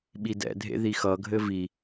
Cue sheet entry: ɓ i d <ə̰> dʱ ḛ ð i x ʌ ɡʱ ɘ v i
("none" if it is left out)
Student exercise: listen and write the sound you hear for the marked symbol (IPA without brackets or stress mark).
ɛ̰